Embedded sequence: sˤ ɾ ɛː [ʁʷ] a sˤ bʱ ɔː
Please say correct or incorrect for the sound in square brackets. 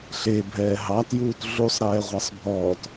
correct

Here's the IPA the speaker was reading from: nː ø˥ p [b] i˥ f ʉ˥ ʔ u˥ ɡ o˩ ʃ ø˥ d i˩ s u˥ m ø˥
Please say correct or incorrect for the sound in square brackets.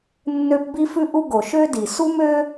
correct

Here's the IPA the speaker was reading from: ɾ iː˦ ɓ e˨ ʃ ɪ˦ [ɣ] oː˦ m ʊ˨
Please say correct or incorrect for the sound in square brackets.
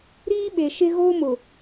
correct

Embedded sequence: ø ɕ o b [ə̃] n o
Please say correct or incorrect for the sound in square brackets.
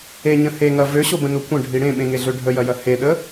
correct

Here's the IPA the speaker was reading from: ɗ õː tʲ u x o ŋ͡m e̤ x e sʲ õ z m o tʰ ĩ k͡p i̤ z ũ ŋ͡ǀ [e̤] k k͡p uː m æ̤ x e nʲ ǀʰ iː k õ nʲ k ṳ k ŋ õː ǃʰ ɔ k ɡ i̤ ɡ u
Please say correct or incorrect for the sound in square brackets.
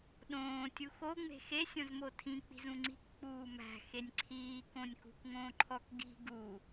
incorrect: i̤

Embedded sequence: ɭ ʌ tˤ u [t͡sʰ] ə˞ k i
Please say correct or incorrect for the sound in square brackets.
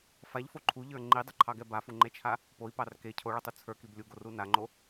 correct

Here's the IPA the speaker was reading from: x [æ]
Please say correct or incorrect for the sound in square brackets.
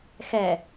incorrect: ɛ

